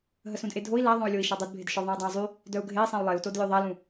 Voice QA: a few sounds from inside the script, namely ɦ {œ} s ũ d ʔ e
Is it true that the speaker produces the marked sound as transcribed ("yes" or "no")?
no